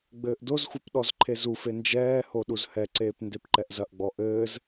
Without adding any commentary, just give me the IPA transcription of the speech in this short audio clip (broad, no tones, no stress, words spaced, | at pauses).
ɡ͡bɘːʔdozxʷɐp ɗɔzǃʰezufe nd͡ʒɛːho ɗuzhɛǀeːp ndepǃɛʔzɐʔɡ͡bɔ ʔɘːz